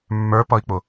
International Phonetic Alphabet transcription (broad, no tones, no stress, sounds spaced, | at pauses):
mː ə˞ p ʌ i̯ k͡p ʊ